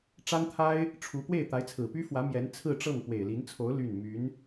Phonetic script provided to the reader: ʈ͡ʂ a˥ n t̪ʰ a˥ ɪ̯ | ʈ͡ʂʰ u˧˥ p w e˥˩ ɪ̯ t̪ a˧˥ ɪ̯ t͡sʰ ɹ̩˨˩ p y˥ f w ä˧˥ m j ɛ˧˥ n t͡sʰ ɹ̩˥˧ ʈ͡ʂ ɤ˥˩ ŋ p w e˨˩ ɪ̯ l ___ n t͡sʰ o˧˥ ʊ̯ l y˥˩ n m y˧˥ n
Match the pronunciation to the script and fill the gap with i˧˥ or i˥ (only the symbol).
i˧˥